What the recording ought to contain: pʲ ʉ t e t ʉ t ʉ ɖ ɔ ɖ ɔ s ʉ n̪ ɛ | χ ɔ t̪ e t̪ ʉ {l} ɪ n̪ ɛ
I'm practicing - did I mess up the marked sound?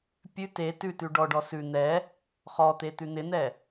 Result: yes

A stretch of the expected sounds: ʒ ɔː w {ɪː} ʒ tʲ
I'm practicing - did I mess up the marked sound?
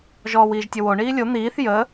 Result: yes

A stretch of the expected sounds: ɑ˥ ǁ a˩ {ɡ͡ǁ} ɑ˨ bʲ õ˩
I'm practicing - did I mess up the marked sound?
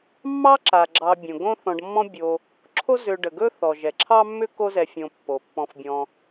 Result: no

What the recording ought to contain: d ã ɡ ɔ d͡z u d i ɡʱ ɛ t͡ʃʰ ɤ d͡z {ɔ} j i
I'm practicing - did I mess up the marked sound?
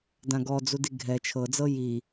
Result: yes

